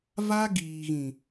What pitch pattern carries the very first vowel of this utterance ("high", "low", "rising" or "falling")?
high